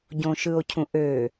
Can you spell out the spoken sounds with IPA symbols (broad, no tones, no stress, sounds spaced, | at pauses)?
ɟ õ ʃ ɯ o̯ cʰ ũ ʔ ø